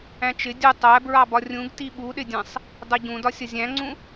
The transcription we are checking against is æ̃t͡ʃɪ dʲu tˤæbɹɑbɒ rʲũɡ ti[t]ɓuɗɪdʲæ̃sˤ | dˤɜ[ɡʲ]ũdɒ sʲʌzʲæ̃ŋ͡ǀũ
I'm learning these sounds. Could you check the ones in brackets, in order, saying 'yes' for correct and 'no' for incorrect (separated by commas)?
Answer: no, no